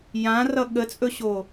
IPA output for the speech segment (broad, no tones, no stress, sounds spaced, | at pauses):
j ã r ʌ ɠ ə t͡sʼ ɵ ɕ o